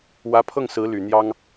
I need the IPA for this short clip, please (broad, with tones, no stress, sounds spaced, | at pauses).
w ä˧˥ pʰ ɤ˥˩ ŋ s ɹ̩˧˥ l y˨˩ n̪ j ɑ˥ ŋ